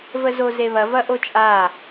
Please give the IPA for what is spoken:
v ə z o z e β ɐ v ɐ ʔ o t͡ʃʼ a

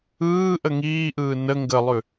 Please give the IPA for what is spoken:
ɯː ʔ ə ŋ iː ʔ ɯː n ə ŋ ɡ ə lˠ ʉ

